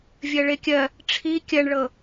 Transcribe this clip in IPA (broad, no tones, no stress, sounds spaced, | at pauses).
vʲ ɜ ɭ e kʲ ɜ | ʈ͡ʂʰ i kʲ ɜ ɳ ɭ ɤ